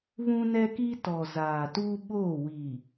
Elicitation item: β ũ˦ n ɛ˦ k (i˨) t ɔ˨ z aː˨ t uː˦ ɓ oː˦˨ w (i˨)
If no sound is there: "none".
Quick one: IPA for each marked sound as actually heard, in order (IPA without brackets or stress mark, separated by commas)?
i˦, iː˨